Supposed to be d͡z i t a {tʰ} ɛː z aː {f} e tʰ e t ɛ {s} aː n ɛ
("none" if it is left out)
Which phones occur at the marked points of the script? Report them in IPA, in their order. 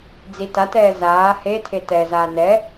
t, h, z

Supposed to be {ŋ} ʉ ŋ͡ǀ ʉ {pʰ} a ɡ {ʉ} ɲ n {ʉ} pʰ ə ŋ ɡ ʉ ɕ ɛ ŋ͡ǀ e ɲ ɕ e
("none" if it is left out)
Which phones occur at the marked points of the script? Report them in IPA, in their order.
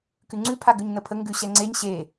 k, pʰ, ʉ, ə

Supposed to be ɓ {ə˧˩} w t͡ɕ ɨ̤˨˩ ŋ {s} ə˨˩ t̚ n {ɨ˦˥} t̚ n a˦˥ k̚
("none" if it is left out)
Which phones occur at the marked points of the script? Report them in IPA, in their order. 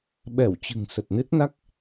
ɛ˧˩, s, ɨ˦˥

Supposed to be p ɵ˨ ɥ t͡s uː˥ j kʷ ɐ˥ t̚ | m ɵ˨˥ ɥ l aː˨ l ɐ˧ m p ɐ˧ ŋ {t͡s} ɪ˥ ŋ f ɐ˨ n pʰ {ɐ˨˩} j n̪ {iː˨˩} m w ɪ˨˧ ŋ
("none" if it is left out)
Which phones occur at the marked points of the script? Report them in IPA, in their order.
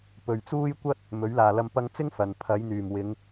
t͡s, ɐ˨˥, yː˨˩

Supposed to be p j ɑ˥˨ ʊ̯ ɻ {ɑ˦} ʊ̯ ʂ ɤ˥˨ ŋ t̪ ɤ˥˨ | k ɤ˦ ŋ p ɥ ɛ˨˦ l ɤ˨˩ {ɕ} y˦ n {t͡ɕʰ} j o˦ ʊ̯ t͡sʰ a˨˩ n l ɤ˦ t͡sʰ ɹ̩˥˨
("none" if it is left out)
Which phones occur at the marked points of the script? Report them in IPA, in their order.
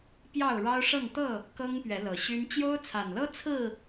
ɑ˦, ɕ, t͡ɕ

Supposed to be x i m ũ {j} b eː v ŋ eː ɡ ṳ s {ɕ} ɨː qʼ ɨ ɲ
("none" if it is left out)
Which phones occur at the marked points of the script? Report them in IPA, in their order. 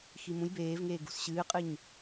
j, ɕ

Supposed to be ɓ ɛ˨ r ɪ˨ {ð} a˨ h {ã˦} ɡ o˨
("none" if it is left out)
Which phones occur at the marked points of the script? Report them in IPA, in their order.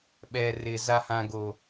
z, ã˨

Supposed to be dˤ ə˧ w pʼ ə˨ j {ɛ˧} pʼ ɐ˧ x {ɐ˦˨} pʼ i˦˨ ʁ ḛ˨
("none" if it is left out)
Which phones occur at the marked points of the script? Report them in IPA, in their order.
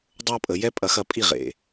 ɛ˦, ɐ˦˨

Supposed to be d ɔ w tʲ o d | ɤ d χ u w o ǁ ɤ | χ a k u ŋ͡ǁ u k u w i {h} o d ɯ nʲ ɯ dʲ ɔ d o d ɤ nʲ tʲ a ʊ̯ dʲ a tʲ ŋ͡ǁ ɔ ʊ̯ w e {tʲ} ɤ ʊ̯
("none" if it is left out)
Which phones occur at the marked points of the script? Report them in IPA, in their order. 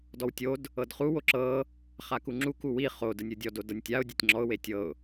χ, tʲ

